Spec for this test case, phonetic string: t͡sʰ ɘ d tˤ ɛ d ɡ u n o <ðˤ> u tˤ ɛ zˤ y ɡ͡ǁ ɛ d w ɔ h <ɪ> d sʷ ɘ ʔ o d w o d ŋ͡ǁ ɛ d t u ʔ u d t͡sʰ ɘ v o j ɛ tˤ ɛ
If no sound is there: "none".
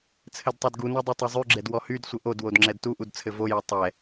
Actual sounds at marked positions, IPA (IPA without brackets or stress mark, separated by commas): dˤ, y